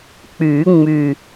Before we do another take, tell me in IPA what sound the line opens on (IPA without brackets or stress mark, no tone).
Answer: k͡p